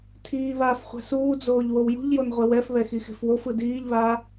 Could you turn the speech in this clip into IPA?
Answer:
tʰiːβaːf χʷɛ̤suːd͡zoːʎ wowjṳʎjon ʁʷɛwɛfβɛ xixe̤fwofɯ diːʎβaː

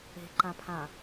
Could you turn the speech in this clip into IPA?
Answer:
e̤ǃãpʰã

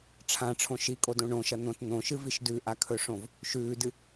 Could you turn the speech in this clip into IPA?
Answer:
ʈ͡ʂʰãʈ͡ʂʰõ ʃikʼodõ ɳõʃɐ n̪õt n̪õʃɨviʃ dʉʔakʰɵʂõv | ʃʉːdɨ

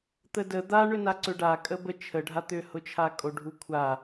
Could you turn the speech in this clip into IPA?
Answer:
t̪ədə d̪a ɳʏnaǀʏɖa kʼəbə t͡ʃʰəɖʱa t̪ʏhʊt͡ʃʰakʼo ɖʱukʷʰa

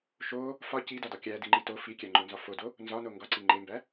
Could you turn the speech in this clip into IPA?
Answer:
ʃo | fɒ cidɒdɒ kʲædiŋ͡ǃi to fikʲæŋ͡ǃonzɒ fodo | nzɒno ŋɡɒǀi ŋ͡ǃembæ

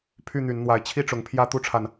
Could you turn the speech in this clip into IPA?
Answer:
pʰy˥˨n̪y˨˦nn̪wa˨˦ɪ̯ t͡ɕʰi˥˨ʈ͡ʂʊ˨˦ŋ pʰjä˦t̪u˦ʈ͡ʂʰa˨n

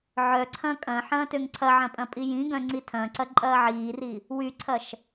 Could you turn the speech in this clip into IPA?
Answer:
ʕœǀʰɐ̃ kʼɐ̃ ħɐ̃ːtøŋǀʰɐʕɐ̃ pʼɐ̃pʼijĩɡœ̃ ŋ͡ǀitʰɐ̃ǀɐ ǃʼɐːʕiːri | wyǀʰɐʃ

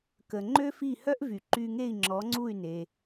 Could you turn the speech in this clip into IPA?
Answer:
kə˩ ŋ͡ǃø˥fi˥˩ hœ˥ʔvy˩ ǃy˧ŋe˥˩i̯ŋ͡ǁɔ˩˥ŋ͡ǀu˥˩y̯ ne˩

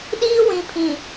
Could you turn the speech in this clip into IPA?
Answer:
ɗiː˦wĩ˨pʰĩ˨

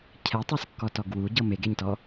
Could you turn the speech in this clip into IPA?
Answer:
cʰɛtˤaskːɔtɔɡ wuɟɤ meɡeɲtɔ

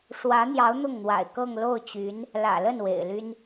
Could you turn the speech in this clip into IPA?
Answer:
ʂwä˧˥n̪jɑ˧˥ʊ̯ n̪ʊ˥˩ŋn̪wa̰˨˩ɪ̯kɤ˥˧ŋ lo˥˩ʊ̯t͡ɕy˧˥n | lä̰˨˩lə˥˩n wḛ˨˩ɪ̯ly˥n

